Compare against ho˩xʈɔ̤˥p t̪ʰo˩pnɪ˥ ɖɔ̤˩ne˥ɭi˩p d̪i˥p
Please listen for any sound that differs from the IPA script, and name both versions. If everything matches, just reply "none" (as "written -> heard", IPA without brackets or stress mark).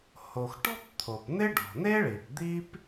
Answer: none